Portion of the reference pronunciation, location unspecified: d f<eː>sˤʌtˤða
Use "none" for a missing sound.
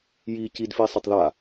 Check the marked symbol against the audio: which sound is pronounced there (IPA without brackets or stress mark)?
iː